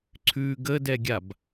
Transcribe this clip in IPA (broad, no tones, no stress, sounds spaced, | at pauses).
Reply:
ǀʰ ʉ ɡ ə d ɛ ɡʲ a b